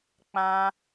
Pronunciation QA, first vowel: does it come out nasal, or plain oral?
nasal